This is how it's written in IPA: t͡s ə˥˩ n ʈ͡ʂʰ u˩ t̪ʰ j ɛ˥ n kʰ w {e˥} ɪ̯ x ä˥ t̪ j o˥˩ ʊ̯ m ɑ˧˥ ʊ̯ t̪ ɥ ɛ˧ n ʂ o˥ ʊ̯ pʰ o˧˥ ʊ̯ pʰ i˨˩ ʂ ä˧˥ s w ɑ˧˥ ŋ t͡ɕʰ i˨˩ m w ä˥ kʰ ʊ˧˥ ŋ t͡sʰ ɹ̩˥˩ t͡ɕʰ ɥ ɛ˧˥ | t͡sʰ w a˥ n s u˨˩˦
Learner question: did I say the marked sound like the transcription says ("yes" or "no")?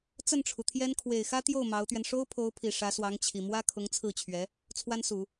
no